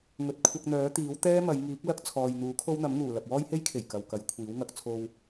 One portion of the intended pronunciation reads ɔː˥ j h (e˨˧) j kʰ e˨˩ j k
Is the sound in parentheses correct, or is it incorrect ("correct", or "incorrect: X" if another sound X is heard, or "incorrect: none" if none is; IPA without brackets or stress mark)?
incorrect: e˥